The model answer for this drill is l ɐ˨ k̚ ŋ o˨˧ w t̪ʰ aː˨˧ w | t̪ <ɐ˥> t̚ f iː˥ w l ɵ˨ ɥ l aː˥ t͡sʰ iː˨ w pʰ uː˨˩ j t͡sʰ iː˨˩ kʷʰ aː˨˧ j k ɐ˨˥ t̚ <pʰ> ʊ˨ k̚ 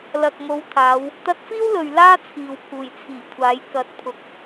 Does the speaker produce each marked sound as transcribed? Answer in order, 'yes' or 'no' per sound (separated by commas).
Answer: no, yes